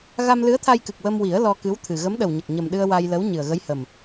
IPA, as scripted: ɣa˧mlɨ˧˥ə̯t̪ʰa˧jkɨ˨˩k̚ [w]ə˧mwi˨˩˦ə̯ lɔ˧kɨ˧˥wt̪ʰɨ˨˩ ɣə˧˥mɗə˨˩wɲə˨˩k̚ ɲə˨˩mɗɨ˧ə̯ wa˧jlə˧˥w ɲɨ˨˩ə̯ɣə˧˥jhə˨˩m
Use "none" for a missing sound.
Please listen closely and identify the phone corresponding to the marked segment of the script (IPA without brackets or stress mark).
w